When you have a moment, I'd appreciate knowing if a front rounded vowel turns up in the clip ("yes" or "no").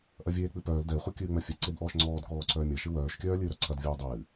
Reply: yes